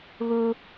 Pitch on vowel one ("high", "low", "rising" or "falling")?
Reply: high